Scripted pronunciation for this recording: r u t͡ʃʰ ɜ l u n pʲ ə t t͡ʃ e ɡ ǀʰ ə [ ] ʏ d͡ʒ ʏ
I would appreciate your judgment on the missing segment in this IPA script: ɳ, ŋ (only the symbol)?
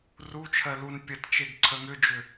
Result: ŋ